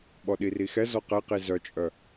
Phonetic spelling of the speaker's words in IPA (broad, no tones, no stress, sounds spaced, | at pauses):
ɓ ɔ ɗ i r i x ɛ z ɔ q ɛ q i z œ t͡ʃʼ œ